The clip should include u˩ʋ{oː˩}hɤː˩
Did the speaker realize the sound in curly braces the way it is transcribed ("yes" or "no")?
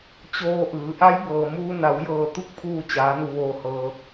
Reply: yes